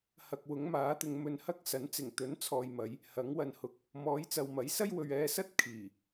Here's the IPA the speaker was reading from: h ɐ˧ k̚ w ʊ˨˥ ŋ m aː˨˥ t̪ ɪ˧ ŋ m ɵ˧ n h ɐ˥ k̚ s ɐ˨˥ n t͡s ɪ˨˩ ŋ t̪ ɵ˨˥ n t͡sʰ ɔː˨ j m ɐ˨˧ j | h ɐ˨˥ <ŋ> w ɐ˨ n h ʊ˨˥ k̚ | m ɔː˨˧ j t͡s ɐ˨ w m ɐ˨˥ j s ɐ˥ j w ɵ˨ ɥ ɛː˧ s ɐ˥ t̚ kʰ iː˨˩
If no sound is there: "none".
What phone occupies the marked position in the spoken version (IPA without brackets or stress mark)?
ŋ